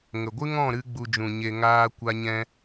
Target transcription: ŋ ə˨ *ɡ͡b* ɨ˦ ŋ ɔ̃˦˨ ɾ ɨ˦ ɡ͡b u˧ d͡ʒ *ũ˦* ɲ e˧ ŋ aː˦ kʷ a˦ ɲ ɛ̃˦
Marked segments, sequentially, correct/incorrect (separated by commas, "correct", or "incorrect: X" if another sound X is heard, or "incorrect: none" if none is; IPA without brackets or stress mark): incorrect: ɡʷ, incorrect: ũ˨